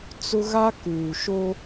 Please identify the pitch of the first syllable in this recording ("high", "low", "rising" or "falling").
high